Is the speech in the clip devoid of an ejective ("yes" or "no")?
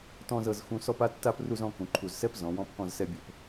yes